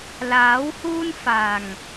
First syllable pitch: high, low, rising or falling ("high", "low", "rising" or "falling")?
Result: rising